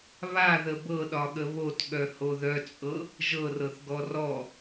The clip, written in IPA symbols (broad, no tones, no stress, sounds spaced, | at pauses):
β a ð ə b ɤ ɗ ɒ ɠ ə β o t ɠ œ h o ð œ t͡sʼ ɤ | ʒ ɤ r ɤ θ ɡ ɔ r ɔ